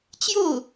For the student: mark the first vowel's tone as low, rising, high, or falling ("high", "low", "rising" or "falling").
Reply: falling